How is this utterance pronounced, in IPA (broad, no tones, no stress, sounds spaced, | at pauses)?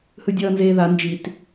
h ɯ dʲ ʌː n z eː ð a n d͡ʒ i t